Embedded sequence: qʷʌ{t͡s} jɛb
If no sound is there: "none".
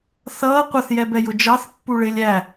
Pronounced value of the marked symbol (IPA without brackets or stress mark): θ